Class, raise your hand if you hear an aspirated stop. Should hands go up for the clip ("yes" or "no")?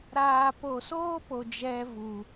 no